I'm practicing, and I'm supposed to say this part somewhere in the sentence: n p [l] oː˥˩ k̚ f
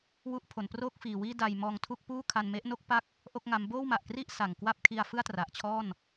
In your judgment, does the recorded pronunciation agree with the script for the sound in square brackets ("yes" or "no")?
no